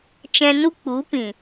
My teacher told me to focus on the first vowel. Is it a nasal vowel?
yes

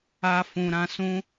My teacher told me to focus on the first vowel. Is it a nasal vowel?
no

